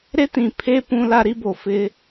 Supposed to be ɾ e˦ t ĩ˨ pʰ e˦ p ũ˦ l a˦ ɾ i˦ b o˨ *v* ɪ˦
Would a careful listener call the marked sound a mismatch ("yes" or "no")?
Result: yes